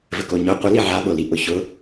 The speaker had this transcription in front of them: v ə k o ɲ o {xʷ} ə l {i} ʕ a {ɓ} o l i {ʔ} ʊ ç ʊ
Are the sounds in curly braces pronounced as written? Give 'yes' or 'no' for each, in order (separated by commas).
no, yes, yes, yes